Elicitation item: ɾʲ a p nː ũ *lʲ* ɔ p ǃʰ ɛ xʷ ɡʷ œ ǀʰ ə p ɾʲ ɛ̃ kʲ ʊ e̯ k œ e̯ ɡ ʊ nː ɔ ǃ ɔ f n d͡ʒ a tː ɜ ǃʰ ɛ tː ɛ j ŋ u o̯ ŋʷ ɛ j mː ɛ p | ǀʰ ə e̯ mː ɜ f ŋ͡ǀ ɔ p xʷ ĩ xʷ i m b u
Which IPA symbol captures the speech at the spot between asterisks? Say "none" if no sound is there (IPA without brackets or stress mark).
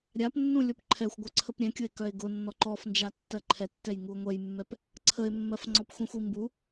lʲ